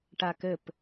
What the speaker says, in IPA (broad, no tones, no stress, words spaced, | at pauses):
ʈakɘp